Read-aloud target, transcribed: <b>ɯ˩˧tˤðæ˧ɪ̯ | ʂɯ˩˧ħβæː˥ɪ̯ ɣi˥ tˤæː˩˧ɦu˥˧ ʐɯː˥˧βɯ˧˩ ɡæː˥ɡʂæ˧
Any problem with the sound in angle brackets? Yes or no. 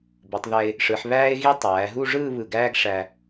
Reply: no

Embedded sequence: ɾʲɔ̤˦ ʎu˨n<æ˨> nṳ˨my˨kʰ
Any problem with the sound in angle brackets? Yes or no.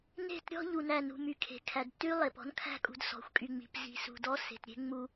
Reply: no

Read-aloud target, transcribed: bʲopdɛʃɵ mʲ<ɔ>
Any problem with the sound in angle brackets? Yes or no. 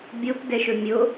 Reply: yes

